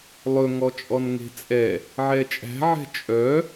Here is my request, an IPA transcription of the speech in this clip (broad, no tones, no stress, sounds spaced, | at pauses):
lˠ ɵ ŋ ɔ t͡ʃʼ ɔ n ŋ e̤ t͡sʼ ɛ | ʕ ɛ t͡ʃʼ æ̤ ʕ ɛ̤ t͡ʃʼ œ